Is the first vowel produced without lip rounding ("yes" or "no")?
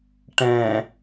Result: yes